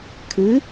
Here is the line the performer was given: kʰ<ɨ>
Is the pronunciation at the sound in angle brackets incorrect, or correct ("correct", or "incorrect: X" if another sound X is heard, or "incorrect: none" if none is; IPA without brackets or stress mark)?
correct